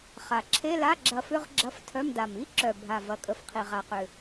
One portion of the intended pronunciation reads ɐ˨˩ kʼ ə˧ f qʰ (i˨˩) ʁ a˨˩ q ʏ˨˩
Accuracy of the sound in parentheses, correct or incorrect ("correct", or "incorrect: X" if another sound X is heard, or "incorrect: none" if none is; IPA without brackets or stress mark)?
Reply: correct